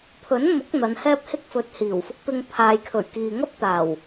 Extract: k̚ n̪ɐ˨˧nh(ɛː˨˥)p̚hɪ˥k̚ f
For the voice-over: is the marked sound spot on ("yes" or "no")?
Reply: no